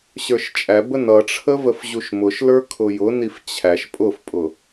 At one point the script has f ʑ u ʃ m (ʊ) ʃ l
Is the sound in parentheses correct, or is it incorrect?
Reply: correct